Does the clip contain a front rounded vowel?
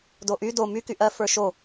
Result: yes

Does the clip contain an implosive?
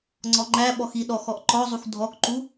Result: yes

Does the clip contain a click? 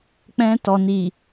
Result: no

